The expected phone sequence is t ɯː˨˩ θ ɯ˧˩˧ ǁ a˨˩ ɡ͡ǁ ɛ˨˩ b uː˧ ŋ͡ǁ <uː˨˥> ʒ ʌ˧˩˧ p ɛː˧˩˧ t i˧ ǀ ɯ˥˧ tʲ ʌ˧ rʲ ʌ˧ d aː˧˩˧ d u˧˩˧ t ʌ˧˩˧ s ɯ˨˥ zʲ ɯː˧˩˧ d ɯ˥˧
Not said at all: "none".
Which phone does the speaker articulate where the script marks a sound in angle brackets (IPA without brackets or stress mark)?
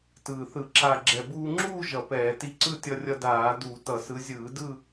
uː˥˧